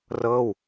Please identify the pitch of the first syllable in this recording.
falling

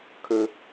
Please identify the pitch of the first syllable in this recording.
high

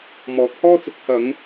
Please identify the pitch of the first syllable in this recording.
rising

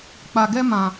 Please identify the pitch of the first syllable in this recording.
low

